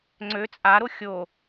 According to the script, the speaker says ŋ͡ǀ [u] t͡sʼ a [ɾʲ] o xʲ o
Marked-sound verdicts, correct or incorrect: incorrect: ø, incorrect: ɾ

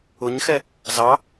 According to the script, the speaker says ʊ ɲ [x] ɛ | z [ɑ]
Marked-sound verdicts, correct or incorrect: correct, correct

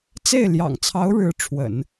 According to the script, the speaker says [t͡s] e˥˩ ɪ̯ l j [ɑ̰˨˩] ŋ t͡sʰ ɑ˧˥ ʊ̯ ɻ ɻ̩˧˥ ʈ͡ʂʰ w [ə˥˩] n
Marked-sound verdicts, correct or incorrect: correct, correct, incorrect: ə̰˨˩˦

